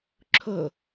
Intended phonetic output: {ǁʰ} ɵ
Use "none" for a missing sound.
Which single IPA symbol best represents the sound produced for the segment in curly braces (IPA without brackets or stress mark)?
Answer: ǁʰ